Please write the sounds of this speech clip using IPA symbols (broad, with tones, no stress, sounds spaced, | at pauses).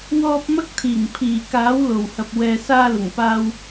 w ɔː˧ p̚ m ɐ˥ k̚ t̪ʰ iː˨˩ ŋ pʰ iː˨˩ k aː˨˥ w l o˨˩ w h ɐ˨ p̚ w ɛː˨ s aː˧ l ʊ˨˩ ŋ p aː˧ w